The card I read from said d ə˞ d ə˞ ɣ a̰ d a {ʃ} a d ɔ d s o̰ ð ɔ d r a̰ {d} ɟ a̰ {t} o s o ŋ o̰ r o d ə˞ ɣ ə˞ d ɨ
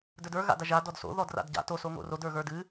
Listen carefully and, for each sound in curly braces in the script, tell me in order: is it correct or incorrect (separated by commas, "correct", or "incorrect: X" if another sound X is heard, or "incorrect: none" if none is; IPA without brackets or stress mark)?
incorrect: ʒ, correct, correct